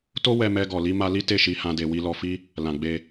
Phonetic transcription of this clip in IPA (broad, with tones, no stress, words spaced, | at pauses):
to˦ wɛ˧ mɛ˧ɡɔ˨ li˧ ma˦ li˦ te˦˨ʃi˧hã˧de˨ wi˧lɔ˧fi˦ | lã˨ɡ͡be˧